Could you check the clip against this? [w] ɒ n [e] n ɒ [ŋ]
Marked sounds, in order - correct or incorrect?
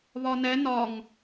incorrect, incorrect, correct

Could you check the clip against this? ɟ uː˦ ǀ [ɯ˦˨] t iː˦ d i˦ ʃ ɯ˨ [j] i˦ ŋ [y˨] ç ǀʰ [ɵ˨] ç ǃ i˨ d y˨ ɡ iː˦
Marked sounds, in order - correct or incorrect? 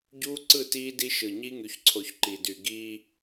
correct, incorrect, correct, incorrect

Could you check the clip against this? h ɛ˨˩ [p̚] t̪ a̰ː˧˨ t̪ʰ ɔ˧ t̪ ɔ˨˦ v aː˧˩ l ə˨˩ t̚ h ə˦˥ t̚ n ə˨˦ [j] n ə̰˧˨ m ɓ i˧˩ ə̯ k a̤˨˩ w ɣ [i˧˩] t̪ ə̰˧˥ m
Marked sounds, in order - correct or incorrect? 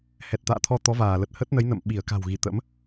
incorrect, correct, correct

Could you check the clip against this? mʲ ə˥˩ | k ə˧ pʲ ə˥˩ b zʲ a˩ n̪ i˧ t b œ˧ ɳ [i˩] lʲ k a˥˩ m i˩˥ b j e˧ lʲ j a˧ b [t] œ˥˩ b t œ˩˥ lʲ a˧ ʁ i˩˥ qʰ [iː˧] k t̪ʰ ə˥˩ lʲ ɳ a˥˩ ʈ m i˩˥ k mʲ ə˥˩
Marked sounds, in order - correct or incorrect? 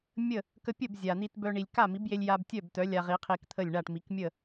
correct, incorrect, incorrect

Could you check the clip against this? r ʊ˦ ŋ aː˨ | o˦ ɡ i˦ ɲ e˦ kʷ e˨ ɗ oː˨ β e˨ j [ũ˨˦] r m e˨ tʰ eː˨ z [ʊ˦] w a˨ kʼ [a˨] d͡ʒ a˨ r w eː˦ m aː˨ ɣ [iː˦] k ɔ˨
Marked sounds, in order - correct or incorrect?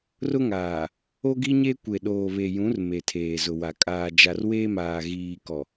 correct, incorrect, incorrect, incorrect

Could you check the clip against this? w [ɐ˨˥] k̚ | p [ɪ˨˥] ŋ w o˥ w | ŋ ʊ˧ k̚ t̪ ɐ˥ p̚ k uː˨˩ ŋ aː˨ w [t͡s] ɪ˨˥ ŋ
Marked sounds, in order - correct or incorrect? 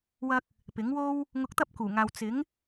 incorrect, correct, correct

